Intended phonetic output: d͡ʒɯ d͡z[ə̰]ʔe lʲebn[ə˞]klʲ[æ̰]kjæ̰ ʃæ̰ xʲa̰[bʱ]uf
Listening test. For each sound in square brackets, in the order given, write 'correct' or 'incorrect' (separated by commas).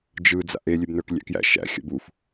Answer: incorrect, correct, correct, incorrect